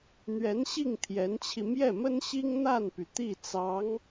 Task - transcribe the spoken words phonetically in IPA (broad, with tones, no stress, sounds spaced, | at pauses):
n̪ ɥ ɛ˧˥ n ɕ i˥˩ ŋ t̪ʰ j ɛ˧˥ n t͡ɕʰ i˧ m j ɛ˥˩ m ə˥ n ɕ i˥ ŋ n̪ a˥˩ n p y˩ t̪ i˥˩ t͡s ɑ˧˥ ŋ